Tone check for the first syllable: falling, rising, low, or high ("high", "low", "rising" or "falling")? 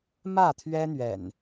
falling